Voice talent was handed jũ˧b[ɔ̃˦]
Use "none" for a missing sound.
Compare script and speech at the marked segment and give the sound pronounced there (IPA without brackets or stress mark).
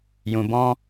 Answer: ɔ̃˦